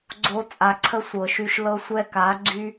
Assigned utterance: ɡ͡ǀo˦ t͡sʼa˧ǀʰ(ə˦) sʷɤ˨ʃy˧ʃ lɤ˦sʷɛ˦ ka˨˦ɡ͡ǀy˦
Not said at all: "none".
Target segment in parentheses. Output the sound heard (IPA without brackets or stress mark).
ə˦